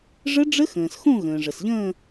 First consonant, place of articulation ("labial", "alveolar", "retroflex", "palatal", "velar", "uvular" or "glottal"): retroflex